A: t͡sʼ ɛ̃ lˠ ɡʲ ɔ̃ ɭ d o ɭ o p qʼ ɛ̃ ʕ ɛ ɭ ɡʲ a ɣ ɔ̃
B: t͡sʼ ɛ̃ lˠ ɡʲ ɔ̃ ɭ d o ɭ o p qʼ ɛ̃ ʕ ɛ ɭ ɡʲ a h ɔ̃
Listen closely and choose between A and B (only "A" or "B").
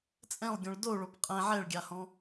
B